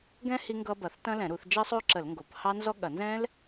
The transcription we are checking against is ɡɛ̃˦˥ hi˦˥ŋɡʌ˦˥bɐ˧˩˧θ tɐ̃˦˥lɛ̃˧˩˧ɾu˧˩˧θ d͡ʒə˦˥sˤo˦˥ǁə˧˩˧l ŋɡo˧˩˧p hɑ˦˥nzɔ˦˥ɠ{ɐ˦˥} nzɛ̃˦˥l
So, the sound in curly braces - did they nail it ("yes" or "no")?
no